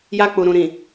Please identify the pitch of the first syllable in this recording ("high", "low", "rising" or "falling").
high